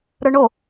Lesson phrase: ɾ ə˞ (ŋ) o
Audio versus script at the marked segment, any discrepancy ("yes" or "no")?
yes